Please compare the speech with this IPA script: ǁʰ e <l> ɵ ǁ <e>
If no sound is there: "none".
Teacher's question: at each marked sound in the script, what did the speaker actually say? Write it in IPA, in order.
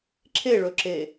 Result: ɭ, e

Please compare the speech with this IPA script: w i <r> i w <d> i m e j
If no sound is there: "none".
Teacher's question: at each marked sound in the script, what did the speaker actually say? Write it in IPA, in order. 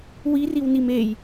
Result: r, n

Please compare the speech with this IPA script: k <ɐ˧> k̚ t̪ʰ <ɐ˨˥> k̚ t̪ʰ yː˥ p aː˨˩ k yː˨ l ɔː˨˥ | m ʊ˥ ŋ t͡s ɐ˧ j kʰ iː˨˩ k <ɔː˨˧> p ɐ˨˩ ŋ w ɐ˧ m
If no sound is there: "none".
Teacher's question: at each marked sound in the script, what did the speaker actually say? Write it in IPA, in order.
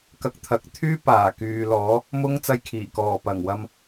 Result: ɐ˧, ɐ˨˥, ɔː˨˩

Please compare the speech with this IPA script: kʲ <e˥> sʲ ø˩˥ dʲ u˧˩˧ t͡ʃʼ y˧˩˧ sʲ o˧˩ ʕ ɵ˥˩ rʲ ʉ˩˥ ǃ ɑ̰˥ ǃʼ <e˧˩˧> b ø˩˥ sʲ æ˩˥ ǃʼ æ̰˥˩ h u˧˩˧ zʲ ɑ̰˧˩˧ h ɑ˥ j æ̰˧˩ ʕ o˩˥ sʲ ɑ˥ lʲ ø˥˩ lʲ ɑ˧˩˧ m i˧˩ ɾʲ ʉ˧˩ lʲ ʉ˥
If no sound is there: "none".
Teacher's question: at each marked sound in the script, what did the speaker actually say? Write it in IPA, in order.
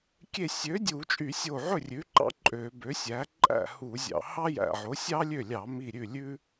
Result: e˧˩, ø˧˩˧

